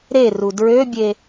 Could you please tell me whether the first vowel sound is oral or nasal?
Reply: oral